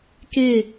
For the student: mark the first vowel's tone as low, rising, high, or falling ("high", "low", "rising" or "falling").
falling